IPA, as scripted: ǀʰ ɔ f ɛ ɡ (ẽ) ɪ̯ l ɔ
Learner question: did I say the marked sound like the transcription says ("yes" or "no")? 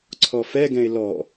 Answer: no